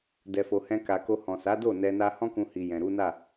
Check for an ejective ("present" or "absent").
absent